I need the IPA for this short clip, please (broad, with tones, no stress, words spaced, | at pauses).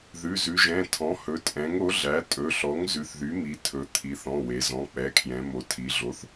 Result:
ðʉ˩˧˩zʉ˩˧ʒɛ̃˩˧˩ tʰɔ̃˩˥hɵ˩˥tʼɛ̃˩˥ŋ o˩˥ɮæ˩˥ tʼɵ˩˧˩ɬɔ˩˥ŋ zʉ˩˥θ ðy˩˥mi˩˧ tʰɵ˩˧ t̪ʰi˩˧θɔ̃˩˧˩ we˩˧zɔ̃˩˧˩ k͡pɛ˩˧˩kʰjɛ̃˩˧mo˩˧ tʰi˩˧ɮo˩˥θ